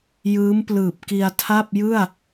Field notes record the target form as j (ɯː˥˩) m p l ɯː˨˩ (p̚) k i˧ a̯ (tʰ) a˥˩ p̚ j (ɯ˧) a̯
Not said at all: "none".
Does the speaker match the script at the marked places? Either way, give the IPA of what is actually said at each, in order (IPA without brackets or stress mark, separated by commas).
ɯː˦˥, p̚, tʰ, ɯ˥˩